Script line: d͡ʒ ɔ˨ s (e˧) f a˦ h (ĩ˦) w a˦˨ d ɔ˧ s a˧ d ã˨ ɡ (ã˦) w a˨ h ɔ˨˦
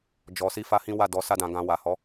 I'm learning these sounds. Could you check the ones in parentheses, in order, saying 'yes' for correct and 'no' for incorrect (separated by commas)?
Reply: no, yes, no